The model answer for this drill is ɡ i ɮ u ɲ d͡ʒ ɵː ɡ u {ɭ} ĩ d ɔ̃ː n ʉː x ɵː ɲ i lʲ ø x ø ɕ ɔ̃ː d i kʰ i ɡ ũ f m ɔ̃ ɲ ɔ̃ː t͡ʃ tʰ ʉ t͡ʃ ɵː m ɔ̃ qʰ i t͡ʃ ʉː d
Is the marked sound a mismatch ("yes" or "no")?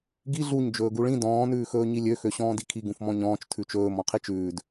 no